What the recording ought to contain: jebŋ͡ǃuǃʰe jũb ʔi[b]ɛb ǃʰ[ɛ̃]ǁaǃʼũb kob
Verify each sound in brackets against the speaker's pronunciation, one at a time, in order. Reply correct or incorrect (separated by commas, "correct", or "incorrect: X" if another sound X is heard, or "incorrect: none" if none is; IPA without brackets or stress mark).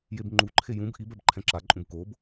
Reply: correct, correct